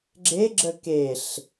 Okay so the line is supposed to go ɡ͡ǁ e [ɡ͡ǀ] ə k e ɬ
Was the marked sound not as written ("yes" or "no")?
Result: yes